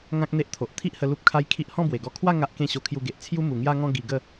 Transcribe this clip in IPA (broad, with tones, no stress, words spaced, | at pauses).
ŋã˦k̚n̪e˦ʔt̪ʰo˨ʔ t̪ʰi˦ʔhə˧ lu˦p̚kʰa˦j kʰi˦ʔ hɔ̃˥˧bwe˨˩ɡɔ˧ kʰwa˥˧ ŋa˦ʔkẽ˥˧ ɕo˧kʰju˧ɡe˨ʔ t͡sʰju˦ mu˨˩ŋja˧ŋɔ̃˧ ɡi˧ɡə˥˧